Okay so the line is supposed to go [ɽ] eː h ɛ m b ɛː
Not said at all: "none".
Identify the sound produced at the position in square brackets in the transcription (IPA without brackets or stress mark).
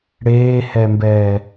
ɽ